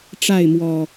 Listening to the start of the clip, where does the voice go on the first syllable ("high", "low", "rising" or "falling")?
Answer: falling